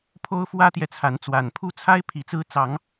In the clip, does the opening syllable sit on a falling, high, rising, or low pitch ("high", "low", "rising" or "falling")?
high